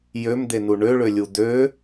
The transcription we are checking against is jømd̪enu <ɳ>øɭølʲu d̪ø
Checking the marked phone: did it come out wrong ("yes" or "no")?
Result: no